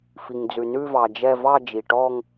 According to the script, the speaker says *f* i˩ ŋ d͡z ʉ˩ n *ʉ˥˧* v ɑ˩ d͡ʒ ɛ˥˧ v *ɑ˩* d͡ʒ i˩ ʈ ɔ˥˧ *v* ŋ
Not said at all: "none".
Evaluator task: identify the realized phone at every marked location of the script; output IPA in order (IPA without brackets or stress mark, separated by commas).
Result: f, ʉ˥˧, ɑ˥˧, none